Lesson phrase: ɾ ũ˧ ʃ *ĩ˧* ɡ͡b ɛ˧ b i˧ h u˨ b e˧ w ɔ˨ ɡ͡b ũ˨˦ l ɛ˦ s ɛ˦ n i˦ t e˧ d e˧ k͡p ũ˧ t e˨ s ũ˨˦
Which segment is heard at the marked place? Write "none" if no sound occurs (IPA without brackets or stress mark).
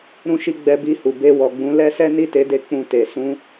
i˧